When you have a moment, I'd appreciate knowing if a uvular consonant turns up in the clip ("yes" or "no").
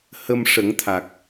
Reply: no